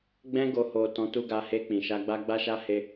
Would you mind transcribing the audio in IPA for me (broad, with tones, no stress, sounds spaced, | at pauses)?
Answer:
ɡ͡b ɛ̃˧ ɡ o˨ h o˨ t ɔ̃˨˦ t u˧ ɡ a˧ h e˧ k͡p ĩ˨ ʃ a˧ ɡ͡b a˦ ɡ͡b a˦ ʃ a˦ h e˦